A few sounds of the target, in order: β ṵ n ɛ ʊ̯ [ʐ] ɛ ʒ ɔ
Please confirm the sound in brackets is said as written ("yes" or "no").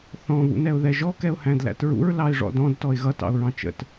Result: no